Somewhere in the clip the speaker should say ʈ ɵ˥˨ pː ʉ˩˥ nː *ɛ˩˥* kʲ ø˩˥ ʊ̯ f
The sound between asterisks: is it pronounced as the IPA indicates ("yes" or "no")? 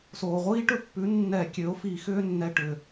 no